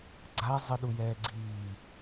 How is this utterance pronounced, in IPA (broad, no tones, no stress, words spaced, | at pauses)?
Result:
ɡ͡ǀa zˤɯɗujɛːɡ͡ǀiː